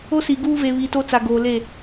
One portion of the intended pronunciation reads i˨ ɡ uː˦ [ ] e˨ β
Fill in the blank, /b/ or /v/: v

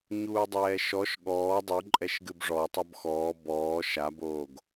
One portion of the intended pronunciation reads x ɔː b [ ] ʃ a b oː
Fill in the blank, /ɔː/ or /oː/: ɔː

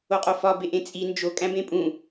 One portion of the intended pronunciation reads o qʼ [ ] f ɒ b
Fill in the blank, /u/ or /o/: o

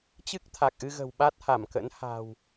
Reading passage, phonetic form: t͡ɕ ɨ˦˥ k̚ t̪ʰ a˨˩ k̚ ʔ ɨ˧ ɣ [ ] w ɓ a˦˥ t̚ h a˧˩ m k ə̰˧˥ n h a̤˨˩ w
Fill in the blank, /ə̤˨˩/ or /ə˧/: ə̤˨˩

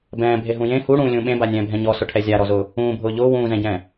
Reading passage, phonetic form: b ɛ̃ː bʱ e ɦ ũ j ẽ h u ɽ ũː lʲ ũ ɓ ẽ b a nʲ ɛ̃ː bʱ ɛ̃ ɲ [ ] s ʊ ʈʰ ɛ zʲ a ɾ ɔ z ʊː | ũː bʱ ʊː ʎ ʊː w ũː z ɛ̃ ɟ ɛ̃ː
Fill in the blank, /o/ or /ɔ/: ɔ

